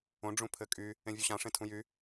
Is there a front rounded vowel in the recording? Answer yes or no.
yes